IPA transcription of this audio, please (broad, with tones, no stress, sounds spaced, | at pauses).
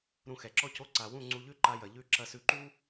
ɾ ũ˧ x ɛ˨ ǁ ɔ˦ c o˦ ǀ a˨ w ũ˦˨ ŋ͡ǀ u˧ ʎ ʉ˦ ǃ a˧ j ɐ˨ ʎ ʉ˦˨ ǁ ɐ˧ s ʉ˧ ǃ u˦